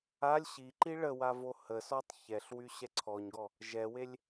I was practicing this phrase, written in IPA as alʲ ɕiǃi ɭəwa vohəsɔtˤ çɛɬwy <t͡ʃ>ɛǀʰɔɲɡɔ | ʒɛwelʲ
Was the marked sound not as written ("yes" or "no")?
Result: yes